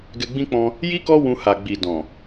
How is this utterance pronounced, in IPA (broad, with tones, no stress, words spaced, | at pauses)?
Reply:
ɡɛ˧ɡ͡bĩ˦k͡pɔ̃˧ | ji˦ kɔ˦ wũ˧ ha˨ɡ͡bi˨ dɔ̃˨